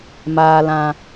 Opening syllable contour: low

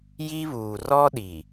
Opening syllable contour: high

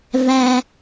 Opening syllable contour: low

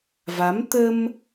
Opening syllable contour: rising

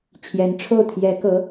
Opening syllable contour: rising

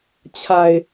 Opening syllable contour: low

